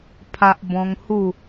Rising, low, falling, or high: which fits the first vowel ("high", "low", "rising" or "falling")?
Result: low